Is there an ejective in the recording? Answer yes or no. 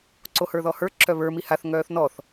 no